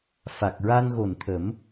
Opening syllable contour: low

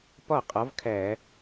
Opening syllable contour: falling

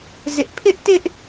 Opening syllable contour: high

